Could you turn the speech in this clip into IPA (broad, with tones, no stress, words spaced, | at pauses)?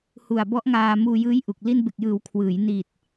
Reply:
hu˨˩a̯bɔ˦˥ʔ ŋaː˧ muː˧jɯː˦˥j ʔu˨˩k̚ li˧nbe˨˩k̚jɯː˩˦w kʰwɯː˩˦j ni˨˩t̚